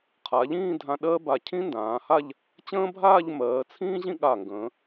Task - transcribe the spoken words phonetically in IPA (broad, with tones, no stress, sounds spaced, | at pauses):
qʰ a˩˧ ʎ ĩː˥˧ dʱ ã˧ ɗ ɜː˥ b a˧˩ cʰ ĩ˥ n d ãː˩˧ h a˥˧ ʎ | t͡ɕ ə̃ː˥ bʱ aː˥˧ ʎ m ɜː˩˧ t͡sʰ ĩː˥ ʑ ĩ˥ ɠ aː˧˩ ŋ ɡ ə̃ː˩˧